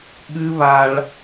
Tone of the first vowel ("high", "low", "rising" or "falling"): high